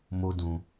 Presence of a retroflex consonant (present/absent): absent